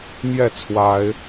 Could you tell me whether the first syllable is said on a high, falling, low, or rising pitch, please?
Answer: falling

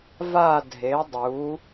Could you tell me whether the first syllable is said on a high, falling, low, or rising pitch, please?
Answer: falling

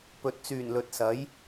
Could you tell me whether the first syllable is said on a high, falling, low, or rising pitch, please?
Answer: low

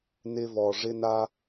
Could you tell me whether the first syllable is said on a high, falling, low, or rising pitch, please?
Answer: low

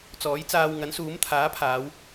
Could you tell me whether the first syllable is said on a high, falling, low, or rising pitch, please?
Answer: rising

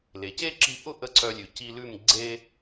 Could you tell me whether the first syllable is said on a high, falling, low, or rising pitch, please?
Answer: low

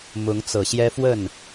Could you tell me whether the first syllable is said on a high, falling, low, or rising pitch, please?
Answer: rising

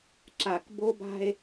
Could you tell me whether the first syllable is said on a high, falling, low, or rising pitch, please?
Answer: low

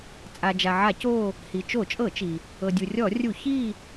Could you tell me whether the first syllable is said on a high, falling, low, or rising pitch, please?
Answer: low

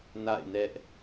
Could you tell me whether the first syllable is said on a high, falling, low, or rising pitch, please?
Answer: falling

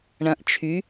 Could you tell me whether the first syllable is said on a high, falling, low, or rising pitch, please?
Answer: rising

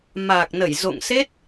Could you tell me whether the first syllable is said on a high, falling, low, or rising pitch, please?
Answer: low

